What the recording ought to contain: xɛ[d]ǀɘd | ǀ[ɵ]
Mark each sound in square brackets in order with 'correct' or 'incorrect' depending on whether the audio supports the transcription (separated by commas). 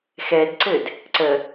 correct, incorrect